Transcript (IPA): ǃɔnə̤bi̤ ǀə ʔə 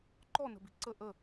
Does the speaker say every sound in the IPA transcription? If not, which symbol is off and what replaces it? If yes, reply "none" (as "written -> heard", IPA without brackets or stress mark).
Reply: none